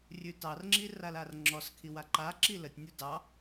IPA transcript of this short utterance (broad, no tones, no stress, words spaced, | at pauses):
rʲʉtɑrŋ͡ǁi ralarŋ͡ǁɔskʰi waǃaǁi lətʲnʲu dɑ